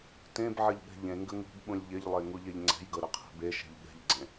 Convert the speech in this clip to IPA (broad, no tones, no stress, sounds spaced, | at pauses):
t ẽ b ʕ ə ʎ ɠ ɛ̤ ʎ ẽ ŋ ɡ ə ŋ ṳ b ɓ ũ lʲ ʎ ɪ ʎ lˠ e ŋ u ʎ e ʎ ŋ͡ǀ ɛ̤ j ɡ ɤ ɾ ɪ qʰ e̤ b e ʃ e̤ ʎ ɠ ɛ̤ ʎ ɡ͡ǀ ẽ